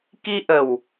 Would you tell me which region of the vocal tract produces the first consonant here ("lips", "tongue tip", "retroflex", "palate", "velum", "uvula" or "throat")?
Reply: velum